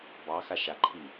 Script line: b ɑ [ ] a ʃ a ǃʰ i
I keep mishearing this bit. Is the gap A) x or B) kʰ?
A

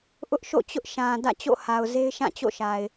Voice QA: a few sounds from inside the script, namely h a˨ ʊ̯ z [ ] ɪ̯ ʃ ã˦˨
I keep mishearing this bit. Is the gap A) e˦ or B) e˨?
A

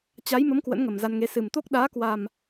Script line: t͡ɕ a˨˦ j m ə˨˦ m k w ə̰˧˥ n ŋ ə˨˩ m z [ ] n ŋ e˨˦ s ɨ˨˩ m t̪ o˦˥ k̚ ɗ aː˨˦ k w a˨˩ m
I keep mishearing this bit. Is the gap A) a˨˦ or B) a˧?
B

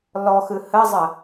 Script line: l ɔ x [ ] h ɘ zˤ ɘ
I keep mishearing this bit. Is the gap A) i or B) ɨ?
B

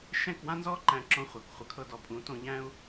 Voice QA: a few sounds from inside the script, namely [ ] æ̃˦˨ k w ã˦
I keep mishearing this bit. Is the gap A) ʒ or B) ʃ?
B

